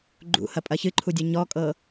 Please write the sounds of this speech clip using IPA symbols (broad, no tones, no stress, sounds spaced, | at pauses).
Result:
ɡ͡ǃ ṵ h ɐ pʼ ɐ ç ɨ ǃʰ u dʲ ɐ ɲ ɔ kʼ ɤ